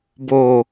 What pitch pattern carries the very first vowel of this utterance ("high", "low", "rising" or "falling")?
low